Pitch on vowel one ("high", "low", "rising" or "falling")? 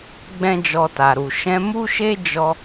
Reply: high